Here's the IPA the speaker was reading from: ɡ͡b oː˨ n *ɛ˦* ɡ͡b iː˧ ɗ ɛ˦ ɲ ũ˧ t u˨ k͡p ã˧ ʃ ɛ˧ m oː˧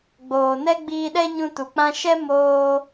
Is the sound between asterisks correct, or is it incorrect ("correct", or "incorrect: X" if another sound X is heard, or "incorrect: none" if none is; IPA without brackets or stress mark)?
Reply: correct